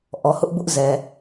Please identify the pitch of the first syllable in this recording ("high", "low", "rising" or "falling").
low